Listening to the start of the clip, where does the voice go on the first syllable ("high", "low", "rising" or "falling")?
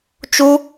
high